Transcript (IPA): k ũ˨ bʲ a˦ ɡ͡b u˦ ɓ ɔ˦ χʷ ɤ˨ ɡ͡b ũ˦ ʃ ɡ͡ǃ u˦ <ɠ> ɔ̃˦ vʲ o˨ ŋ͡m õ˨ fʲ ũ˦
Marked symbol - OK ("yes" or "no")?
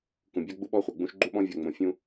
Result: no